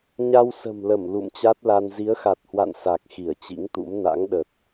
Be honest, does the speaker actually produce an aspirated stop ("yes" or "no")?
no